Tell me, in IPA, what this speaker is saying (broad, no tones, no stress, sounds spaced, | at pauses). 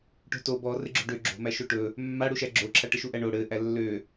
ʈ o̤ t o b ɔ r ɘ ɡ͡ǁ o̤ ɖ ø ɡ͡ǁ o̤ m æ ʃ o ʈ ɵ | mː a ɽ u ʃ æ ɡ͡ǁ o ǁʰ a ʈ ə ʃ u ʔ æ ɳ o ɽ ɘ ʔ æ lː ø